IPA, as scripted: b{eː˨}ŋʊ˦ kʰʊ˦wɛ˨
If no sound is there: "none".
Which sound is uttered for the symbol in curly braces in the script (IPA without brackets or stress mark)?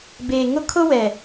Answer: eː˨